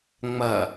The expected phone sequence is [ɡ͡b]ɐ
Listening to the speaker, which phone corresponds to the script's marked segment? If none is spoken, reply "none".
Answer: ŋ͡m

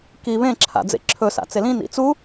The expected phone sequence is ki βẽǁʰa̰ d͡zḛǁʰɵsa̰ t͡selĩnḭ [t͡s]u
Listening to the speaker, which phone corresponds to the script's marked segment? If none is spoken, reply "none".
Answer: t͡s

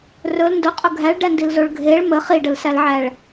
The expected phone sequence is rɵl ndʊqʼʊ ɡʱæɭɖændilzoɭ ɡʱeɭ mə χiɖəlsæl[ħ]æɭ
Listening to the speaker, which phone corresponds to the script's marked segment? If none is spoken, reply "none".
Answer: ʕ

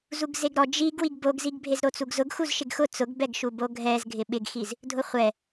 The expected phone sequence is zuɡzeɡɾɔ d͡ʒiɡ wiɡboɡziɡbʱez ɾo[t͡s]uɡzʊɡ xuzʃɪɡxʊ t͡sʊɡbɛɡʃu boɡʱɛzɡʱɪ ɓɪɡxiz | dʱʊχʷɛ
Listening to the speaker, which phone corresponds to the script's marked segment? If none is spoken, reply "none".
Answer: t͡s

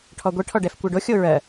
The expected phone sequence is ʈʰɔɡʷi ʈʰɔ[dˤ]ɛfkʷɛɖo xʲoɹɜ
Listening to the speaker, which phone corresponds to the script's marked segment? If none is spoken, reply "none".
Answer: ɖ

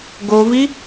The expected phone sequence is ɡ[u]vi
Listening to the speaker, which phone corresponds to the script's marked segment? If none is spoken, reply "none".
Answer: o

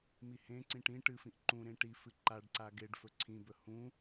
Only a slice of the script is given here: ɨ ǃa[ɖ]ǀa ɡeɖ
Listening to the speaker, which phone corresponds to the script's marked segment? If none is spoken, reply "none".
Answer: ɖ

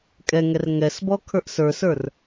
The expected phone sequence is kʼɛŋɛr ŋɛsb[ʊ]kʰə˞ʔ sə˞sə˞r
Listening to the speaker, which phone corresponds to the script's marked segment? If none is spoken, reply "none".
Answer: ɔ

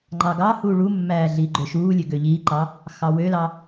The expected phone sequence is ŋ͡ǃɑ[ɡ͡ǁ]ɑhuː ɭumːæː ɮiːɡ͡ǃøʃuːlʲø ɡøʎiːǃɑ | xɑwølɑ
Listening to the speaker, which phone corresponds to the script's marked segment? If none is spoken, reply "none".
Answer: ɡ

